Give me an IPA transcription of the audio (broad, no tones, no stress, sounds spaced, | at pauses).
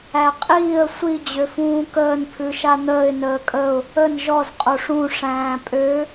æ qʼ iː ə̯ sʷ i d͡ʑ ø f ũː k əː n pʰ ʉ ʃ a n̪ əː ɪ̯ n əː kʼ ə ʊ̯ | ə n ʒ ɔ z qʼ o ʂ ũ ʂ æ̃ː pʼ ø